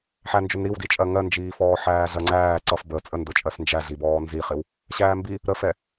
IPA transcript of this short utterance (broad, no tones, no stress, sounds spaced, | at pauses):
ħ æ n d͡ʒ ʊ n ɾ i w d i t͡ʃʼ ɜ ŋ ɜ n d͡ʒ iː f ɔː ħ æː ɮ ɜ ŋ͡ǀ æː ǀ ʌ f b ə t͡sʼ ə n d ʊ t͡ʃʼ ɜ s n d͡ʒ æ ɮ i b ɔː n z i χ ɪ w | ɕ æː m b i | ɾ ə f ɛ